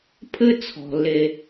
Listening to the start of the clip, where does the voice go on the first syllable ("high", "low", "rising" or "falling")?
high